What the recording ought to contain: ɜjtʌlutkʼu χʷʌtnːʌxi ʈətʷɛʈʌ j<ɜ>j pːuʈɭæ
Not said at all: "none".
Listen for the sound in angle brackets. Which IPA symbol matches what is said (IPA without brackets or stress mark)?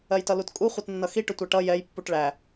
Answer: ɛ